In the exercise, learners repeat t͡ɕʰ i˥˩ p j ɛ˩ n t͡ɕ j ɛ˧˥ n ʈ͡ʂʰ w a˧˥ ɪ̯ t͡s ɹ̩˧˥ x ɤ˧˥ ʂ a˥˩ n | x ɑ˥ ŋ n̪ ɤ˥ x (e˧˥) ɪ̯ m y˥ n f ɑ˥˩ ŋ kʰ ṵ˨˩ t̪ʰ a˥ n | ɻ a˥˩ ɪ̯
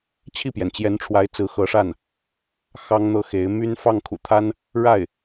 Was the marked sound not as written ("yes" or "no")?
no